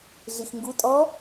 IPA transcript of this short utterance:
ɮ i x ŋ ɡ u tʼ ɔ

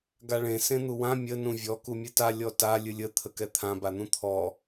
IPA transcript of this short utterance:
ɡ a ɭ ẽ s ẽ n̪ u w ã mʲ ə n ũ vʲ ɔ k u mʲ ɨ t a lʲ ɔ t a lʲ ɨ lʲ ə t̪ʰ ə k ɛ t̪ʰ ã b a n̪ ũ t̪ʰ ɔ

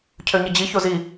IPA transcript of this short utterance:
cʰ ø ɲ ə d͡ʑ i ç o z i

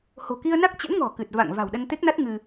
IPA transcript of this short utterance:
h o̤˨˩ k i˧ ə̯ n a˦˥ k̚ t͡ɕ ə̰˧˥ n ŋ ɔ̤˨˩ k ɨ˨˩ t̚ v a̰˧˨ ŋ v a̤˨˩ w ɗ ə˧ n t̪ e˦˥ k̚ n a˦˥ t̚ ŋ ɨ˧

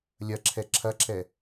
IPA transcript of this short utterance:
lʲ ɐ ǁʰ ɛ ǁʰ ɐ ǁ ɛ

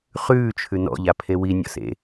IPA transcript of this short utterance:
χ ʉː t͡ʃʰ ʉ n ɔ̰ ʎ a pʰ e w i nʲ ɔ̰ s ḛ

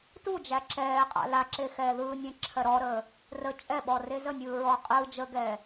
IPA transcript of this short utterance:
t u d͡ʒ æ ǁ ɛː qʼ a̰ l a ǁ e x ɛː ð ɯː nʲ ɛ̃ ǁʰ ɜ ɾ ɔ ɾ əː | r ə t͡ʃʼ ɛ ɓ ɔ r e z ə nʲ ɯː ɹ ɔ qʼ ɯː d͡ʒ ə ɡ ɛː

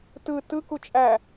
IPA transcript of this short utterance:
t ɯ t ɯ k u t͡ʃʼ æ

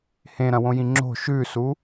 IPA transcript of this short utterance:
h ẽ ɾ ɐ̃ w õ j ĩ ŋ͡ǁ o̤ ʃ ʉ s u

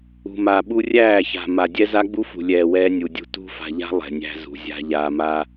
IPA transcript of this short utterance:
ṳ˨ m a˨ ɓ u˦ rʲ æː˦˨ ç a̤˨ m a˨ dʲ ɛ˦ z a˦ ɡ͡b u˦ f ṳ˨ lʲ ɛː˨ w ɛː˦ nʲ u˨ dʲ ṳ˦ t ṳ˦ f a̤˨ ʎ a̤˦ lˠ ɛ̤˨ nʲ æ̤˦ z ṳ˨ zʲ a̤˦ ʎ aː˨ m aː˦

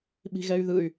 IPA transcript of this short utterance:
ɓ i̤ ɣ ɛ y̯ ð ɯ y̯

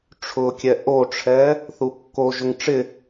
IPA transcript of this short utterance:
ʈ͡ʂʰ ʊ kʲ ɛ ʔ o ʈ͡ʂʰ ɛ | θ u kː o ʒ ʊ ŋ ʈ͡ʂ ɪ

